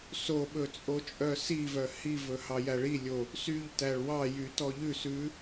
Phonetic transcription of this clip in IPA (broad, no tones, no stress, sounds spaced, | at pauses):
s o ɓ ɵ t͡sʼ o t͡ʃʼ œ s i v œ h i v ɵ h ɑ j æ ɭ i lʲ o | s y ʎ t æ ɭ w ɑ j y t ɔ ʎ ʉ s ʉ